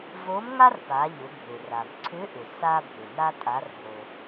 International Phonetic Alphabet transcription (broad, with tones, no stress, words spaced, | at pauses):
vo˧˥mŋa˥rpa˩˧ʎʏ˩˧ bʱʏ˩ra˩mǀʰʏ˧˥ʔʏ˩ sa˧ bʱʏ˩na˧ tʼa˩˧rɦo˩